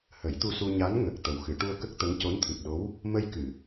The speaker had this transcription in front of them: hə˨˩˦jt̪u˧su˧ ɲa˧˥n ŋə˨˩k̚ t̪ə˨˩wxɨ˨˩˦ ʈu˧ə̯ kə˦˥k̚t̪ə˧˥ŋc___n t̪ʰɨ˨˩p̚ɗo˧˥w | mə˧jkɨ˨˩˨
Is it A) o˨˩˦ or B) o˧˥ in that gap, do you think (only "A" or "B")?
B